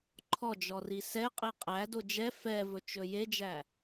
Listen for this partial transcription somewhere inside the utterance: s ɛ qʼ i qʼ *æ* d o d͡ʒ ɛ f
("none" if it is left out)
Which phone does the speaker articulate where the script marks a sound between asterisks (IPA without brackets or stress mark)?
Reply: æ